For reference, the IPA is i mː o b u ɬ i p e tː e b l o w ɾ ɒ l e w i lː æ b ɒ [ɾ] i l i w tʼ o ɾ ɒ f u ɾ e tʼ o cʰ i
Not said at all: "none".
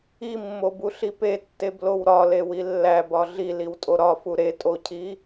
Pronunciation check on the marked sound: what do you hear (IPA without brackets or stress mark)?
ɮ